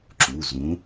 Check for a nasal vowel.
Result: present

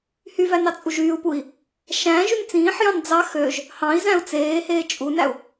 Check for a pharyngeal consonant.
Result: present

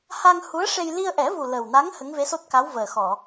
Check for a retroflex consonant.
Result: present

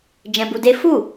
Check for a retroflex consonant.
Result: absent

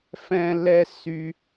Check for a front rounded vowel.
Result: present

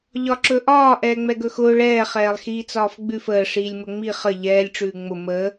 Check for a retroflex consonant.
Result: present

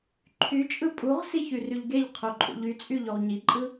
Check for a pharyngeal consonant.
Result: absent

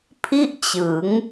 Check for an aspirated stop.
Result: present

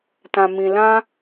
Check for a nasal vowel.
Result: present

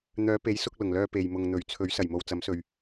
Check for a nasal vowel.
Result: absent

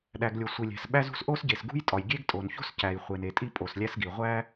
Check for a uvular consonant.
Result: present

